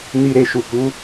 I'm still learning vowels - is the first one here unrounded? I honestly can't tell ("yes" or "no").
yes